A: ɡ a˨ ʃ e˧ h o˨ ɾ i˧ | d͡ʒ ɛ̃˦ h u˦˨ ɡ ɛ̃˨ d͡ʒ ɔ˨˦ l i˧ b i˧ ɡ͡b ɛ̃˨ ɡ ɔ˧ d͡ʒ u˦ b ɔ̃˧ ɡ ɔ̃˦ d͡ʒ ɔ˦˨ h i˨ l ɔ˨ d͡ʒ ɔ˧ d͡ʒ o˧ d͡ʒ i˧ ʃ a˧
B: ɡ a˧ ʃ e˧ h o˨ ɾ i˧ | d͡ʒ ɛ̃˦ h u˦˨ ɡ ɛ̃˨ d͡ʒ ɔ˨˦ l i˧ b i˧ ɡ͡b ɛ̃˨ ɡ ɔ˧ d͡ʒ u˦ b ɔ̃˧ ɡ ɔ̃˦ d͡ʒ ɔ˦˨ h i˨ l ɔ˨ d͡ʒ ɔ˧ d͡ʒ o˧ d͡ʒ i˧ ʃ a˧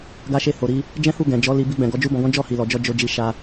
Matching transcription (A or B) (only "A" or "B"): B